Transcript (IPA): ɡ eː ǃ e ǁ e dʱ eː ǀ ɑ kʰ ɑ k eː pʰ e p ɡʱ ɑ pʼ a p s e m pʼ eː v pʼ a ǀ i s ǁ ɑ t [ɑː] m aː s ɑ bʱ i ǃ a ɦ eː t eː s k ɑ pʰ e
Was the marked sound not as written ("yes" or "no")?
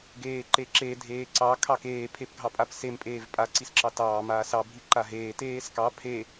no